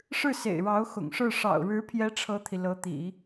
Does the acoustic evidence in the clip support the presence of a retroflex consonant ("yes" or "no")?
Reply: yes